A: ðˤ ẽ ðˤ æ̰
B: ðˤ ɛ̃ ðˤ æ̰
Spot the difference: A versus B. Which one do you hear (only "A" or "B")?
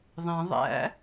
A